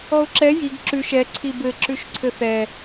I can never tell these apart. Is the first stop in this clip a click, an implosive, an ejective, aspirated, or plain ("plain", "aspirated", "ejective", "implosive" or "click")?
click